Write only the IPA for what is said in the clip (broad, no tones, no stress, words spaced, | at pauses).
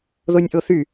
ðonʲʔoθy